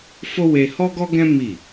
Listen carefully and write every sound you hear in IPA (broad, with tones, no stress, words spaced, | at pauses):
fo˦we˧ hɔ˦ɡɔ˦ɡɛ̃˦ mi˦˨